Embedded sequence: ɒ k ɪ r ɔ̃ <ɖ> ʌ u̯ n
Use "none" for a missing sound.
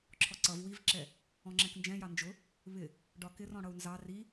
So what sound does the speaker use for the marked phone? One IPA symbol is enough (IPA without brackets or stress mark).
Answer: ɽ